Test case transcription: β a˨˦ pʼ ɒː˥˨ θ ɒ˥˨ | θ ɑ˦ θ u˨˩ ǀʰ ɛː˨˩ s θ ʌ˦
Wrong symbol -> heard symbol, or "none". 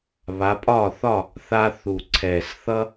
ɑ˦ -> a˦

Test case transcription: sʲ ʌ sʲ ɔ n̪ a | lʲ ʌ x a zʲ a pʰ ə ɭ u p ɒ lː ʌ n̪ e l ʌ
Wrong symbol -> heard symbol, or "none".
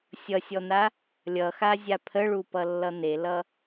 ɒ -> ʌ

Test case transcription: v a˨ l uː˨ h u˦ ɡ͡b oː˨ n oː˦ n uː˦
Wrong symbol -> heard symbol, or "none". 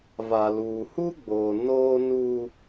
none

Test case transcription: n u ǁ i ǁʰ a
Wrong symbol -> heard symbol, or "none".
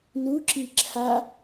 none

